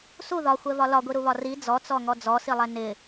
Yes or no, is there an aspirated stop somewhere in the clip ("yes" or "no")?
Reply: no